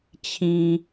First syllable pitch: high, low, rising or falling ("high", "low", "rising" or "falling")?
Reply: low